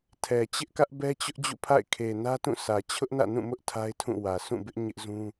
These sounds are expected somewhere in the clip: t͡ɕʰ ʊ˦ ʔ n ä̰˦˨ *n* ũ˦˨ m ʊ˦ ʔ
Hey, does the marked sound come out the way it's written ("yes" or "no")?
yes